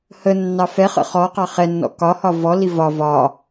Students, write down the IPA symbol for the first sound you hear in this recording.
h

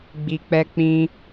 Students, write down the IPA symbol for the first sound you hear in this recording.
ɡ͡b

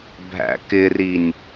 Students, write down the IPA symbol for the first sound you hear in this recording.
bʱ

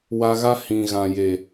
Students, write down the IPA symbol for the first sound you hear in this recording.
w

